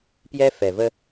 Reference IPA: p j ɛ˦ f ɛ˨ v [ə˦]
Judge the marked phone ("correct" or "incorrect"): correct